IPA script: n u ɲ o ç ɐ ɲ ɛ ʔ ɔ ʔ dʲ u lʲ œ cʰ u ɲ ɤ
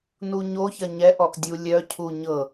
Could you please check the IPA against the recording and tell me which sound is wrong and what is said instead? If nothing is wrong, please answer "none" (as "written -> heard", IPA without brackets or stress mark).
none